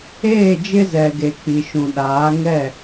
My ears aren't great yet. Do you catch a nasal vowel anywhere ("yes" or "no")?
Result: yes